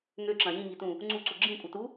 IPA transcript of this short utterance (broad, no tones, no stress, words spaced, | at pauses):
ŋøǁɐ̃ jĩŋitũ | ŋ͡ǀuǀu ɡ͡ǁĩkʷʼɐtu